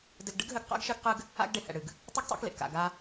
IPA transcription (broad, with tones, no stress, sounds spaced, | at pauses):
d ɘ˧ ɡ ɖ ɨ˦ ɡ ɦ ɘ˧ ɡ q a̰˦ ɡ ʃ ɘ˦ ɡ q ɨ˦ ɡ | a̰˦ ɡ ɖ e˨ h ɛ̰˨ ɽ ɨ˨ ɡ | tˤ ɨ˦ ɡ tˤ ḛ˦ k l ḛ˨ k a̰˨ ɡ a˧